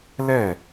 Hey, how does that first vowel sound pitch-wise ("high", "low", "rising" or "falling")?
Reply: falling